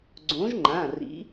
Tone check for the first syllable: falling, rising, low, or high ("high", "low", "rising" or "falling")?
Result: rising